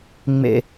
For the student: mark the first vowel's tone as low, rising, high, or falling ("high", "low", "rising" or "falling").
low